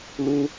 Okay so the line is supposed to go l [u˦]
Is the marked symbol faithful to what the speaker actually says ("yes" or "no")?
yes